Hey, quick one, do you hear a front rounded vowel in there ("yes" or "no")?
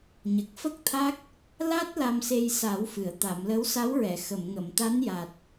no